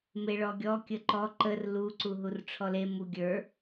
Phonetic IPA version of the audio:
meɭɔɡʲɔ kʲəǃɔ ǃər lu ǀuɦurʈ͡ʂʰɔle muɡʲə˞

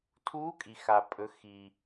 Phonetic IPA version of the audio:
tʰuː˧˥kʼi˩ xa˩pʼɵ˩˧xi˩

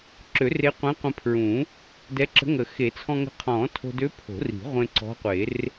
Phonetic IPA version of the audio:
ǁø˨˩˦re˧˥qʷɛ̃˧˥ qʷə̃˧pʰɹũ˨˩˦ | dɛ˧˥ǁə̤˧˥ŋə˨˩˦ xe˨˩˦t͡sʰɔ̃˧ŋə̤˧˥ qʰɔ̃ː˨˩˦tʰo̤˧dø˧˥ pʰo̤˨˩˦ri̤˨˩˦ʁʷẽ˧ ǀɔ̤˧˥qʷe˨˩˦r

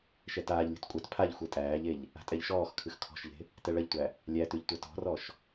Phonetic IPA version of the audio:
ʃɛtaːʎlʲṳt kʷʼɛt pʰaʎ xʷetʼæːʎeʎ | a̤tʼɛʎʃɔːxkʰɨx kʰɔ̤ʃʎe̤ | tɛɭɐʎtʷæ | lʲætʉʎ tʷɐtɔ̤rɔʃ

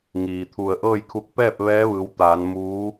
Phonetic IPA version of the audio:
ŋiː˩t̪ʰu˧˩ə̯ ʔɤː˥˨jkʰu˧˥k̚ pɛː˥˨p̚ ʋɛː˧˥ʋɯː˩˧wt̪aː˩˧n muː˧˥

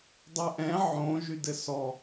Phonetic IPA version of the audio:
dˤɛʔɛ̃ ʕõ ʒydɘsɔ

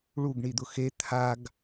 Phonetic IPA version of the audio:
ɭuɡɳid̪ʊ xe t̪ʰaɡ

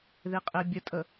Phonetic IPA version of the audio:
ðeqʼebʲətʼə

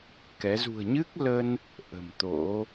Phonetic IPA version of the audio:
kɛ˨˦ zṳ˨˩ə̯ɲɨ˦˥k̚lə˧n | ʔə̤˨˩mt̪o̰˧˥

